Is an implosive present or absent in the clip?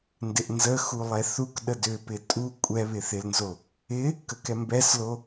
present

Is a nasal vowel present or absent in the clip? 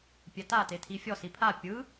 absent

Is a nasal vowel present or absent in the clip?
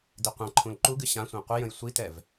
present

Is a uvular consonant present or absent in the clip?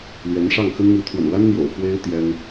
absent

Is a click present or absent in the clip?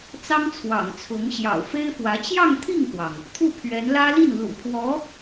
absent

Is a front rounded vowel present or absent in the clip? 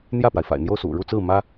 absent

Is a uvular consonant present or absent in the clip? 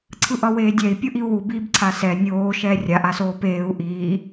absent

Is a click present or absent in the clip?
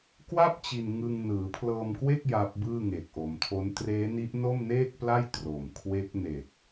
absent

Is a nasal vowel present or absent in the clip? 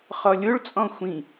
present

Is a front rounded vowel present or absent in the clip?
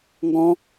absent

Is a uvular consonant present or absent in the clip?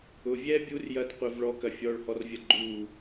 present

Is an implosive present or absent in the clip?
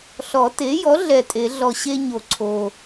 absent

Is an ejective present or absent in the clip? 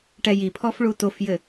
absent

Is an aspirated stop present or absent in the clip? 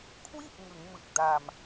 present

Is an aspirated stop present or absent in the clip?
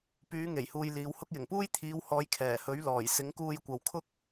present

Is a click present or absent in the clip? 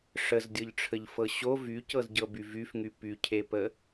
absent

